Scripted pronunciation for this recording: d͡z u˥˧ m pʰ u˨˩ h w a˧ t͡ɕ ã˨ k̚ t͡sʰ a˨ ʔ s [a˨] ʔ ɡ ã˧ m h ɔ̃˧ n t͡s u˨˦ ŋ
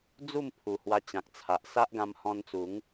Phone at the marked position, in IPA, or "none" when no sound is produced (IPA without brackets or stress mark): a˦